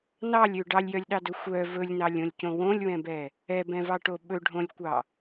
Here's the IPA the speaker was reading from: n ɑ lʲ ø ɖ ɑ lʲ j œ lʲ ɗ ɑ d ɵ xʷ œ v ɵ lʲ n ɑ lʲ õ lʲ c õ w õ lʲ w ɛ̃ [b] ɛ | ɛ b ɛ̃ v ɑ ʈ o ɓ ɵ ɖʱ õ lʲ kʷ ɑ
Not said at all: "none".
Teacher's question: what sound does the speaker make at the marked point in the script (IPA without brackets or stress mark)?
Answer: b